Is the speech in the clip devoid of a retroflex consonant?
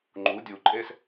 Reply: yes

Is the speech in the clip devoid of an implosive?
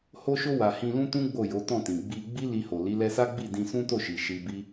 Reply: yes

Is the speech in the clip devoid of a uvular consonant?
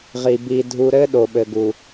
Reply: no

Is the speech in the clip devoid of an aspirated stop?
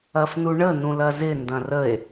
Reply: yes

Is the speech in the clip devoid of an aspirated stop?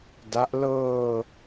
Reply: yes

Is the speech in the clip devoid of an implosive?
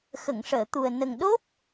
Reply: no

